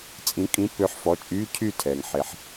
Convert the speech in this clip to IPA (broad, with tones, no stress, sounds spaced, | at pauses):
t͡sʼ ĩ˨˥ kʼ ĩ˨˥ pː ø˨˥ ħ f ɔ˩˧˩ t͡ʃʼ yː˧˥˧ cʰ yː˥˨ tʰ ɛː˩ ŋ ħ e˩ ħ